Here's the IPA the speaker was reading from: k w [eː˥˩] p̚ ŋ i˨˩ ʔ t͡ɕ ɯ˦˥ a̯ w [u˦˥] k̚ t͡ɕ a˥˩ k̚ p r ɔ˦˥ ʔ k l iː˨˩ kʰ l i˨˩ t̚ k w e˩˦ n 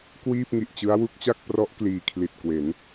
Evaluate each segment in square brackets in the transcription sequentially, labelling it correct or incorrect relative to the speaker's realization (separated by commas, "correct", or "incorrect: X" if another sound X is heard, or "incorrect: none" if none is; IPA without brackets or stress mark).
incorrect: iː˥˩, correct